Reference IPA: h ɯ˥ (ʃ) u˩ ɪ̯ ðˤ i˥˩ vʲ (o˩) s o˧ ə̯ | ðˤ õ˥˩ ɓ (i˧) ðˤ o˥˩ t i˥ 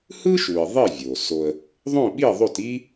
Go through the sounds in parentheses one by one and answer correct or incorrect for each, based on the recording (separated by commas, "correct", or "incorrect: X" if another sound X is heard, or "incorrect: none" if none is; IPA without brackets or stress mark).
correct, correct, incorrect: i˥˩